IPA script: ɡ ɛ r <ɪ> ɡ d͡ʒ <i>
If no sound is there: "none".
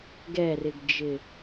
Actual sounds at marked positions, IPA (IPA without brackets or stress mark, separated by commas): ɪ, ɪ